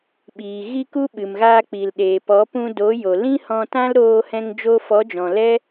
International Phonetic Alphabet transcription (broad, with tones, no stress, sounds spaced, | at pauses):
ɓ iː˨ ɣ i˦ k u˦ ɓ ɨ˨ m ɣ aː˧ k͡p i˨ l ɗ eː˨ p ɔ˨˦ p ũ˧ d o˨˦ j o˨ l ĩ˦ h ɔ̃˧ t ã˦ l ɾ oː˧ h ɛ̃˧ ŋ d͡ʒ oː˧ f ɔ˨˦ d͡ʒ ɔ̃˨ l ɛ˦